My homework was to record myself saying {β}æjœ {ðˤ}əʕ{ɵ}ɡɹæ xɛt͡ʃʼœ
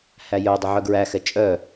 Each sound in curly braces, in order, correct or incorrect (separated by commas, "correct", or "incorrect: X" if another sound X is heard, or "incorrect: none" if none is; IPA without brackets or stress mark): incorrect: h, incorrect: dˤ, incorrect: œ